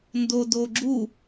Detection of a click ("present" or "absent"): present